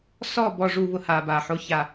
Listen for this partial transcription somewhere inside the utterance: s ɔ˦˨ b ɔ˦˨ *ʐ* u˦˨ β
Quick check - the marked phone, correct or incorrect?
correct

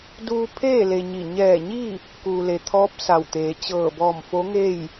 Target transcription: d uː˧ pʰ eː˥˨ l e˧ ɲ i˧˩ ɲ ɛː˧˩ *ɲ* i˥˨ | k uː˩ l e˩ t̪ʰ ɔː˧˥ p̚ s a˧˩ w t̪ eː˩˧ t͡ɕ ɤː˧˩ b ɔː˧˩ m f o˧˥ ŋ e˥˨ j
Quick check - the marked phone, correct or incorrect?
correct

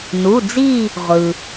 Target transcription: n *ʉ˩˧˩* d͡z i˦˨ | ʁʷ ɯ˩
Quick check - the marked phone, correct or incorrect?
incorrect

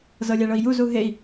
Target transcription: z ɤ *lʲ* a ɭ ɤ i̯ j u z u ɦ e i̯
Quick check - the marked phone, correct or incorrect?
correct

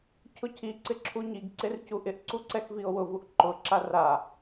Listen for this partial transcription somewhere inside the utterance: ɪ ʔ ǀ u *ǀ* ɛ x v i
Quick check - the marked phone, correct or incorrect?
correct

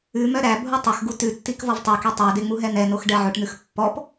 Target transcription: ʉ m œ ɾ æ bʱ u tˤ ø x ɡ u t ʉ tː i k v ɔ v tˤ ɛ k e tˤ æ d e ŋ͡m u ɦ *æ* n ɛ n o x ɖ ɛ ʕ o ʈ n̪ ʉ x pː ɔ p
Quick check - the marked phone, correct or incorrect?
incorrect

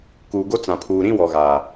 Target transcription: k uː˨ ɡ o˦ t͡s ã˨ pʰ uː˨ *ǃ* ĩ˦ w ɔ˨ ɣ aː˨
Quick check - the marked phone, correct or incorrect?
incorrect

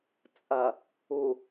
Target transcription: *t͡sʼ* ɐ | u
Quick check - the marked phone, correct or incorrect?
correct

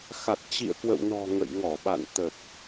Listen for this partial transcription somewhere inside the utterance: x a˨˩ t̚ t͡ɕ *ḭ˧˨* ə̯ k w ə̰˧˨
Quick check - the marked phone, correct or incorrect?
correct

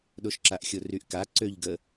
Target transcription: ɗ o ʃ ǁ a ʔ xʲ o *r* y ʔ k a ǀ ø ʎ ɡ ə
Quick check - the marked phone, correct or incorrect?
correct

